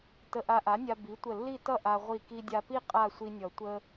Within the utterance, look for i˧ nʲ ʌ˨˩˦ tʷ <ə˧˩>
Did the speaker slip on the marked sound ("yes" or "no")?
yes